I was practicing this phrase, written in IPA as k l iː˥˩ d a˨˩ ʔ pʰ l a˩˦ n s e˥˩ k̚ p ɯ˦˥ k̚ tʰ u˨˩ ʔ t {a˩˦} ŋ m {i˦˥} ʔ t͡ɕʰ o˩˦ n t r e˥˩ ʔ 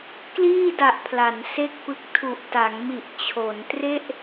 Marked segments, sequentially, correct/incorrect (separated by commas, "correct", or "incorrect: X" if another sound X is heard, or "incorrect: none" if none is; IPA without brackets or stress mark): correct, incorrect: i˨˩